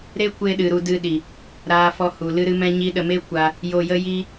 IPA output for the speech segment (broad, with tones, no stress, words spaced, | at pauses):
ɾe˦kʷe˧ɗɨ˨ ɾu˧dɨ˧ ɗi˨ | ɾaː˧fɔ˧ hu˨ lɨ˦ɾɨ˦mɛ̃˦ɲi˦ ɗə˧me˦kʷa˧ | jo˧jə˦ ji˦